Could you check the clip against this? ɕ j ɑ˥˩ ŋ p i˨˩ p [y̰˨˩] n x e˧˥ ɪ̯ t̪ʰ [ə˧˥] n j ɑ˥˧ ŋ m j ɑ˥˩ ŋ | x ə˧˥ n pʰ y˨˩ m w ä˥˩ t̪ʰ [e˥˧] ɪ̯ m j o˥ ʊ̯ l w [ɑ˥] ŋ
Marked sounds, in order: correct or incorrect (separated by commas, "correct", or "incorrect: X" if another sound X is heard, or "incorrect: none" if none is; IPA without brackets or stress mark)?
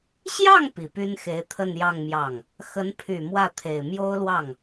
incorrect: y˥, incorrect: ə˥˧, incorrect: e˨˩, incorrect: ɑ˥˩